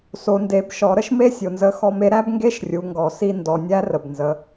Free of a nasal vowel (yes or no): yes